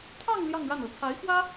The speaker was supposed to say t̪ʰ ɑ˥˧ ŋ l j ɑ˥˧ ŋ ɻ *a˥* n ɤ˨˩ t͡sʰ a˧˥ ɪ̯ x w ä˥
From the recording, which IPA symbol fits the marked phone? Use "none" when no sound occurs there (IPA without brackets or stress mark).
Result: a˥˩